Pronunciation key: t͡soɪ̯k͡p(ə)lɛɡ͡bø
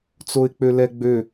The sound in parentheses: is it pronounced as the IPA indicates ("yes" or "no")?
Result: no